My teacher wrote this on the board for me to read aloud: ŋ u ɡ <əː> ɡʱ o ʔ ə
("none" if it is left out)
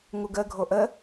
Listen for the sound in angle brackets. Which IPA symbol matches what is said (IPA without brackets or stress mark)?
ə